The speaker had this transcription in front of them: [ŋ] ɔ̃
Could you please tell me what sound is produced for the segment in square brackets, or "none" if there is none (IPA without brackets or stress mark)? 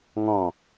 ŋ